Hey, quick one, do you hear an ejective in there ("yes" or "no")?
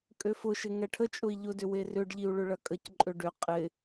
yes